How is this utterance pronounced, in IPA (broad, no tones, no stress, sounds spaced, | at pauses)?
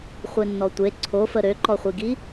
χʷ e nː ɔ tʷ e ǀʰ o f ə ɾ ø ǃ ɔ χʷ i ɡ i